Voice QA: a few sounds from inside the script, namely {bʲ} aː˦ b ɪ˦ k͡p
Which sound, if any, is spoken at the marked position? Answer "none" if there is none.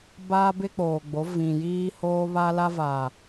b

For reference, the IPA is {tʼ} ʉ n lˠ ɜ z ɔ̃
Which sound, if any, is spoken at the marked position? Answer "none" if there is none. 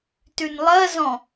t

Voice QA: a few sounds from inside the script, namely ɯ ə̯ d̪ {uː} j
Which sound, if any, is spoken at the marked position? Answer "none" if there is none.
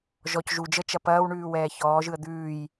ʉː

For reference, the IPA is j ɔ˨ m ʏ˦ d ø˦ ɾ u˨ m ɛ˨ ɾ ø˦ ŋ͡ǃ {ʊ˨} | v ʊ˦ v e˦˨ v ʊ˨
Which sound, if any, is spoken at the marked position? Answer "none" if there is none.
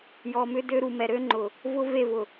ʊ˨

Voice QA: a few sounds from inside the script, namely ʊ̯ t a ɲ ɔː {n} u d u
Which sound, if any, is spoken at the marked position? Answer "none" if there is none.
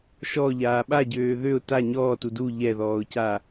t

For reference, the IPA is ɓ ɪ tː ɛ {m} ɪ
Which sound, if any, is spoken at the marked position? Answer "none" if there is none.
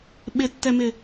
m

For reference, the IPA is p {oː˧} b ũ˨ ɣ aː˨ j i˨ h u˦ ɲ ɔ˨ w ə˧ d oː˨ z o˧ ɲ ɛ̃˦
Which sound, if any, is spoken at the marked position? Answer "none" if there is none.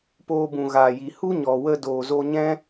oː˧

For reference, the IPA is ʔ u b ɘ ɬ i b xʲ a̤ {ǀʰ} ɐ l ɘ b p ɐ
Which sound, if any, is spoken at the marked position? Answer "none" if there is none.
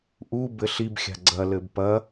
ɡ͡ǀ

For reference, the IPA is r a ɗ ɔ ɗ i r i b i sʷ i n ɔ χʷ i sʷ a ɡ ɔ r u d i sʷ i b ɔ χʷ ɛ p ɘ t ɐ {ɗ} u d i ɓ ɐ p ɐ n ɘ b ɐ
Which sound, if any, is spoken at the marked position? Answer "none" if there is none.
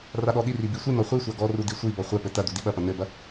d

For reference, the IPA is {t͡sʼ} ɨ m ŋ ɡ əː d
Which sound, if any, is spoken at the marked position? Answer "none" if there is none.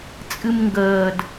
t͡sʼ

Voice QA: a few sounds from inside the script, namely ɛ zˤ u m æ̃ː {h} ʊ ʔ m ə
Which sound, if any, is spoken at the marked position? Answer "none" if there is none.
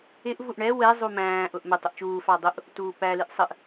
ʔ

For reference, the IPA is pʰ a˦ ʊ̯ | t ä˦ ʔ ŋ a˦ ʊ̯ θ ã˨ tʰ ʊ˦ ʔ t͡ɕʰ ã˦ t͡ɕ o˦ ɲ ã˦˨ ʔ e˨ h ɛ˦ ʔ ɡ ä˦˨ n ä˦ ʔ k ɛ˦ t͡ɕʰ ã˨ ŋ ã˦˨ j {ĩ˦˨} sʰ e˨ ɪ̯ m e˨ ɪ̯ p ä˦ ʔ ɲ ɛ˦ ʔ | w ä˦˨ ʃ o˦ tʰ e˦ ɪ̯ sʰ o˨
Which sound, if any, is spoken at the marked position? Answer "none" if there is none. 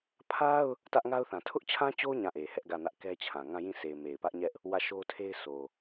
ĩ˦˨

